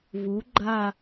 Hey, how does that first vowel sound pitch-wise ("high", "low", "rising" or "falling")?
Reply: rising